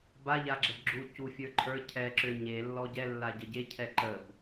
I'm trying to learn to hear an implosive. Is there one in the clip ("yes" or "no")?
no